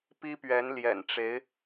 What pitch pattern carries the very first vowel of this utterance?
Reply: high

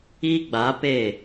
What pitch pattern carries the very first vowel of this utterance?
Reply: high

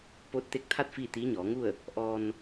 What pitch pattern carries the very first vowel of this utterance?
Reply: rising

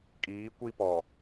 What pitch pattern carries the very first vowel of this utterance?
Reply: rising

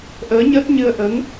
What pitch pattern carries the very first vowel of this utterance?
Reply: rising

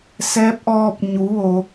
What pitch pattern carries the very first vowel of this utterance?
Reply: rising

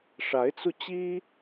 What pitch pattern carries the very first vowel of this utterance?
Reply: rising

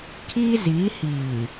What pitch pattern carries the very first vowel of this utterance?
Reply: high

